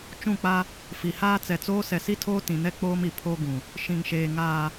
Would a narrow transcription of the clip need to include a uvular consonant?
no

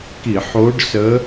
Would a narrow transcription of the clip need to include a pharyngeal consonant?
yes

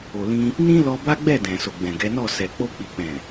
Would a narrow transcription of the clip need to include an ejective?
no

